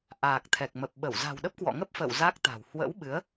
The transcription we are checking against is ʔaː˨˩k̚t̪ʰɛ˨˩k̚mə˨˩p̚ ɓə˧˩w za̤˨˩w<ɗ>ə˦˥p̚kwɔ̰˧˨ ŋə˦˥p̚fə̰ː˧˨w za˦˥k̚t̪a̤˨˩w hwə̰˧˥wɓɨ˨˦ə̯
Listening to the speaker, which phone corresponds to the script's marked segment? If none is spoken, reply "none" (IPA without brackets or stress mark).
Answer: ɗ